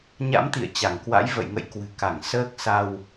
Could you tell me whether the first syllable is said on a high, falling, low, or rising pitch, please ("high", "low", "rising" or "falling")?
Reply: rising